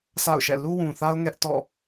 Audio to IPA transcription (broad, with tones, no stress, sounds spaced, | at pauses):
sʰ a̰˦˨ ʊ̯ ʃ ɛ̰˦˨ l u˦ w ũ˨ θ a˦ ʊ̯ ŋ ɛ˦ ʔ t ɔ̰˦˨